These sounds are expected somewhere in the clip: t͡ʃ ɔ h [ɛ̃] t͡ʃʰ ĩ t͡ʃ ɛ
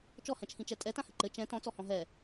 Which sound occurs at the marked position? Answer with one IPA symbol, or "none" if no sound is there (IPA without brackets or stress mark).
ɛ̃